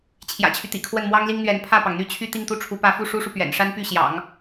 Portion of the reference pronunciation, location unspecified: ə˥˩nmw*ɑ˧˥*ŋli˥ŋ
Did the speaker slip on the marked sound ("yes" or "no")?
yes